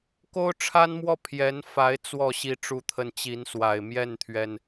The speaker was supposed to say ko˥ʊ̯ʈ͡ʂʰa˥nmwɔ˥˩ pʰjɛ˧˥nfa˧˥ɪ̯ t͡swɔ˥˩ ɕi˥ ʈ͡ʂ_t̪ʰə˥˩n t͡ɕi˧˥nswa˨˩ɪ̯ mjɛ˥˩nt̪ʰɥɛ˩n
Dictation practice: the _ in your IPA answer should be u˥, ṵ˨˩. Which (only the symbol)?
u˥